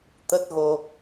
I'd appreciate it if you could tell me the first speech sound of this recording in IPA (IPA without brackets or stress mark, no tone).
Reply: t̪